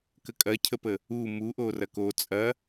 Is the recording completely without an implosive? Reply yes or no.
yes